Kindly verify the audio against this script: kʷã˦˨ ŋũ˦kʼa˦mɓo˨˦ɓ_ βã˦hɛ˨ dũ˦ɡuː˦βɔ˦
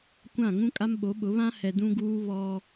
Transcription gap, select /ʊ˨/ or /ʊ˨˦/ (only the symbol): ʊ˨˦